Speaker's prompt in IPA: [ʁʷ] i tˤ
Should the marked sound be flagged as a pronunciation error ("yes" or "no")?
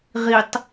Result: yes